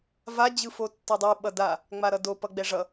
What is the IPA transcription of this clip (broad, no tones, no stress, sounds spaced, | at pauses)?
v a d͡ʑ ɯ f o tː ʌ dˤ ɯ ɓ ʌ d a | ŋ͡m a ɾ ʌ d o p ʌ ɡ͡b ɛ ʐ ʌ